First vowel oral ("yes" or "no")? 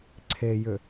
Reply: yes